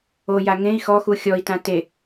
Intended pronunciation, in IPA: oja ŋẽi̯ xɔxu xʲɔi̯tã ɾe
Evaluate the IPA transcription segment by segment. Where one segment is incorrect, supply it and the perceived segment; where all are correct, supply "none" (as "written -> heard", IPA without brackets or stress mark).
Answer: ɾ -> t